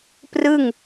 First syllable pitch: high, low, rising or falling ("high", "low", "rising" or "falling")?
falling